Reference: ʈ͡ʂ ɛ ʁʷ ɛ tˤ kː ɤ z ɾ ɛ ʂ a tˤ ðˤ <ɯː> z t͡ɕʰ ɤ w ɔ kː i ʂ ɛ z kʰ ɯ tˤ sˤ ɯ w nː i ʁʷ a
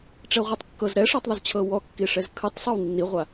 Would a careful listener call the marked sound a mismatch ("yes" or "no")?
yes